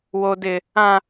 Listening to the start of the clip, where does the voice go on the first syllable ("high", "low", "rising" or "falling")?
high